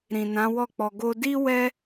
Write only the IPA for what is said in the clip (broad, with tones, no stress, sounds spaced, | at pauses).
ɾ ĩ˨ n ã˨˦ w ɔ˦˨ k͡p ɔ˧ ɡ o˧ d i˦ w ɛ˦